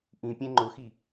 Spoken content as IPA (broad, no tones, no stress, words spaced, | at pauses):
ʔĩpʲẽ ŋ͡ǃʊxi